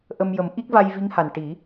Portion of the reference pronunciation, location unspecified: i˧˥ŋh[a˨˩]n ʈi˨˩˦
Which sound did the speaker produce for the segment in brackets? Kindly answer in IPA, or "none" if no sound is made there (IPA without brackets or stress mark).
a˨˩